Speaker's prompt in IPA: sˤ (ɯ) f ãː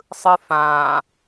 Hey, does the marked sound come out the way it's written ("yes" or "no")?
yes